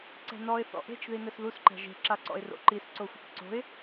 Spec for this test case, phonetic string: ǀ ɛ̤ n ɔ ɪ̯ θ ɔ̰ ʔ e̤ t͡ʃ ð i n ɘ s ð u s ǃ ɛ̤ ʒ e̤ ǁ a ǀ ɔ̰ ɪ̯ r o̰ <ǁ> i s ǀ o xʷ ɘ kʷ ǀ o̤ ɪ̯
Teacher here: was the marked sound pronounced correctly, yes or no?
no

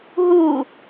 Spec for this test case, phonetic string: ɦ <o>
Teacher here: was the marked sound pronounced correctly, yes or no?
no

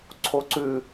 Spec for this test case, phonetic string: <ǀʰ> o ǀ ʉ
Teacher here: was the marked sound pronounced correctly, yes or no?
yes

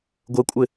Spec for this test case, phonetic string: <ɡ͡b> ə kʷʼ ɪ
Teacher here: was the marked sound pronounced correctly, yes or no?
no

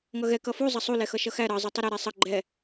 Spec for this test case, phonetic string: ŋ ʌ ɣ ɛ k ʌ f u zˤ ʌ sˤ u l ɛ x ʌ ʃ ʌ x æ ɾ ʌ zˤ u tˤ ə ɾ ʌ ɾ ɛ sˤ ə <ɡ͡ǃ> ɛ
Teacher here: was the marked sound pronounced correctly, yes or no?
yes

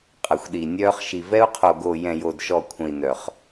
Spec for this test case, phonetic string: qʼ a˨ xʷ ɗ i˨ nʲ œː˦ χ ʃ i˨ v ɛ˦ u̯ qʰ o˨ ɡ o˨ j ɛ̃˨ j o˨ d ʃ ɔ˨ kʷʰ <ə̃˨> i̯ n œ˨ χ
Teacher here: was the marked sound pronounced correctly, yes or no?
yes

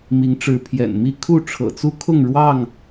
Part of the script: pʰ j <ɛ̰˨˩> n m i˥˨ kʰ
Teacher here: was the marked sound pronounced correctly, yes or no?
yes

